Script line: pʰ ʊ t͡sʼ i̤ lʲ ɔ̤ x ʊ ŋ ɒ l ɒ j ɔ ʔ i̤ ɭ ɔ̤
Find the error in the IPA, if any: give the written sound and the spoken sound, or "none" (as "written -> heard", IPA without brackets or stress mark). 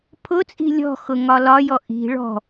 none